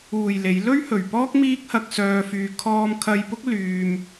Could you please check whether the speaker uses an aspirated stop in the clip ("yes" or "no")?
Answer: yes